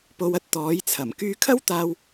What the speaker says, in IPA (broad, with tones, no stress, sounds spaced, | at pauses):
p o˧ w ɐ˥ t̚ t̪ ɔː˨˥ j t͡sʰ ɐ˨˩ m k yː˧ kʰ ɐ˥ w t̪ aː˧ w